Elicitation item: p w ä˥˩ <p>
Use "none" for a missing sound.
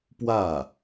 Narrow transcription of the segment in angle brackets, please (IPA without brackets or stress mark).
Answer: none